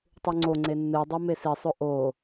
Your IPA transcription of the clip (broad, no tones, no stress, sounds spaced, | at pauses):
tˤ u ŋ͡ǀ o ŋ͡ǀ e nː ɨ dˤ u m e s i sˤ ɵ ʔ o